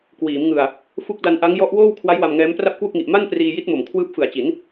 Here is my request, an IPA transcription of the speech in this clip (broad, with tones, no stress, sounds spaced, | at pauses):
k w iː˩˦ m ŋ ɯ˨˩ a̯ | f u˦˥ k̚ d a˧ n ʔ a˦˥ ŋ j ɔ˦˥ ʔ w oː˥˩ w kʰ w a˦˥ j w a˧ m ŋ ɛː˦˥ m p r a˥˩ p̚ k w u˥˩ k̚ ŋ i˨˩ ʔ m a˥˩ n p r iː˧ j i˦˥ t̚ m o˨˩ m kʰ w ɯː˦˥ p̚ f ɯ˨˩ a̯ t͡ɕ i˩˦ n